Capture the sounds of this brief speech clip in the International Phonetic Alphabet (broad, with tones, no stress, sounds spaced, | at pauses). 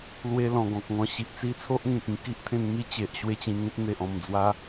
l w e˧ l ɔ̃˨˩ ɡ ɔ̃˨ k̚ ŋ ɔ̃˧ ɕ i˨ ʔ t͡s i˦ t͡sʰ o˦ ʔ ŋ ẽ˨ k̚ ĩ˧ k i˦ ʔ t̪ʰ ẽ˧ n m i˦ t͡ɕ e˨ ʔ ɕ w e˥˧ t͡ɕ ĩ˧ ŋ ẽ˦ t̚ n̪ e˨ ʔ ɔ̃˨˩ m d͡z w a˦